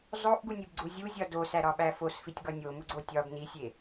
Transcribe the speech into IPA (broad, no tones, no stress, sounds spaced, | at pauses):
zˤ o ʔ ɡ u nʲ e b ɡ͡ǀ u zʲ u zʲ ɒ d o s æ ɾ ɒ ɓ æ f o s f i tʲ ɡ ɒ nʲ o m u ɡ͡ǀ o tʲ ɒ b n i sʲ e